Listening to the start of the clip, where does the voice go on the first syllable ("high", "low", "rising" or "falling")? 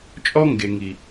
high